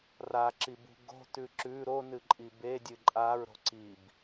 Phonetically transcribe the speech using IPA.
r a ǁ i b ṳ ɡ o̤ t ʉ ǁ ʉ ɾ o n ɨ ǃʼ i b e dʲ ɨ ǃʼ a ɹ ɾ o̤ ǀ i b

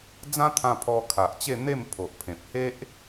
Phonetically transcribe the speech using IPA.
d͡z ã˦ t̪ʰ ã˧ pʰ ɔ˧ kʰ a˨ ʔ t͡ɕ e˥˧ n̪ e˥˧ m pʰ o˨ ʔ pʰ ẽ˨ p̚ h e˦ ʔ

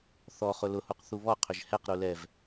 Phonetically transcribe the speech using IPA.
θ ɔ χ ʊ l ʊ h u q θ u β ɔ qʰ ʏ ʒ h ɛ q ɾ u l ɛ v

